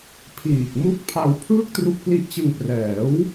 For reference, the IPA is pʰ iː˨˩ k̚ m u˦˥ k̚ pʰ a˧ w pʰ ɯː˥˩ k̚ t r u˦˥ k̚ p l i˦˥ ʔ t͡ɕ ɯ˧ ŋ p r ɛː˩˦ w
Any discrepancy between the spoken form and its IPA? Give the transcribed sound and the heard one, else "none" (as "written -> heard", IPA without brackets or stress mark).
none